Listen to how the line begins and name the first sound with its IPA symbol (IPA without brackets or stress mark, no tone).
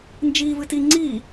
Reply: n